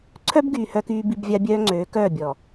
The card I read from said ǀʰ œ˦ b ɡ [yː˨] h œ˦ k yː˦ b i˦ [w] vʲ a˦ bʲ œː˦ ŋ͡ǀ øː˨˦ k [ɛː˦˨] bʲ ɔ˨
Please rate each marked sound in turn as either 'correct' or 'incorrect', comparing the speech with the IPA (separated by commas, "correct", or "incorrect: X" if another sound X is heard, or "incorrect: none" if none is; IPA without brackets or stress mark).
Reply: correct, incorrect: b, incorrect: œː˦˨